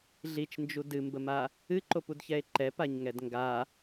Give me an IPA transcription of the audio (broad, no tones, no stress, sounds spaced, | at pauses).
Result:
ɮ i t͡ʃ n d͡ʒ u d ɨ m b ə m a | ɨ ǃ o p u d ç ɛ e̯ ǃ ɛ p a ɲ ŋ ɛ d ŋ ɡ a